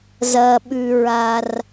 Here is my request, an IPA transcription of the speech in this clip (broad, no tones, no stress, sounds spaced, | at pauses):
z ɐ ɓ ʉ ɹ a r